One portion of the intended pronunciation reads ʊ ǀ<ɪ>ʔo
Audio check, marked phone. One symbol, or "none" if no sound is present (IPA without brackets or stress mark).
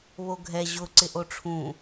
ɪ